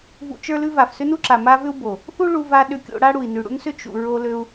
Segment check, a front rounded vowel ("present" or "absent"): present